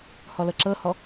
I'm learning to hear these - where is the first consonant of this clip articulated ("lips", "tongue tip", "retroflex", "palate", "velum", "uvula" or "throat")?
throat